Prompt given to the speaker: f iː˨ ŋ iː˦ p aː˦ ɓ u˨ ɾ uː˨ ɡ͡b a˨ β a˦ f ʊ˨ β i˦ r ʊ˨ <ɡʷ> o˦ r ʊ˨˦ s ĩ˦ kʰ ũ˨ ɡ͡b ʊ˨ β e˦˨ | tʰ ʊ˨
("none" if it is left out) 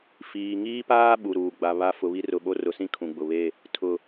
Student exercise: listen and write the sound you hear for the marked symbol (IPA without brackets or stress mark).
ɓ